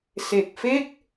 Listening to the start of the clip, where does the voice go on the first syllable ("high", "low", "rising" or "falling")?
low